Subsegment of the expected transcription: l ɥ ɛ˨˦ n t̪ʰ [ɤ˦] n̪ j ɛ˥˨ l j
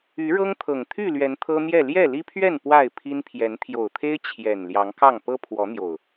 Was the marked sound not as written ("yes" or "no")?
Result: no